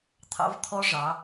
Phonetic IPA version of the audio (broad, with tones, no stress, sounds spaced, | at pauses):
t̪ʰ ɑ̰˦ v t̪ʰ ɔ˦ ʐ ɑ˨˦